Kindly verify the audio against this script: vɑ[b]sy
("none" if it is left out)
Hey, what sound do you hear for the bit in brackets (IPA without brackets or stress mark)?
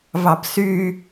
b